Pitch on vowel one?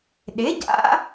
rising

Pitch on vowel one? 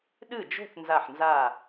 falling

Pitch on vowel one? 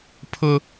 high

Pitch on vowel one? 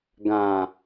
low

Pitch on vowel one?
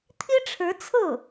high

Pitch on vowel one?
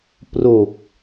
low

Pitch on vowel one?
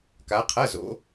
rising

